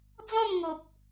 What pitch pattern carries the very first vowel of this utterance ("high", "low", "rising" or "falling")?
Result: falling